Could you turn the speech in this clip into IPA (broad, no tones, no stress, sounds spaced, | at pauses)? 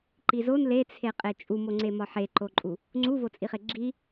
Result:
ǃ i z o n l e t͡sʰ e qʼ e t͡ʃʼ u m o ŋ͡ǀ e m ɒ ħ e ǃ o ǃʼ u | ŋ͡ǀ u v o t͡sʼ i χ e ɡ͡ǁ i